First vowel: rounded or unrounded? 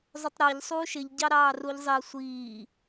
rounded